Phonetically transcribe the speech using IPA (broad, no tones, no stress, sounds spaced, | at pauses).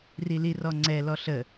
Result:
r i l i r ɔ ŋ͡ǀ ɛ l ɔ ɬ ə